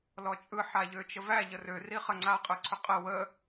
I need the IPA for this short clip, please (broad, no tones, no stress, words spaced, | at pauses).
lɔt͡ʃʼɯ ħaʎøt͡ʃəvæ ʎərø riχə ŋ͡ǀa qʼɯǀʰʏqʼə wə